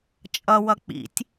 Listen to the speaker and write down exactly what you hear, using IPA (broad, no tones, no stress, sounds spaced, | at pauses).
t͡ʃʼ ʌ w ʌ k͡p ḭ tʲ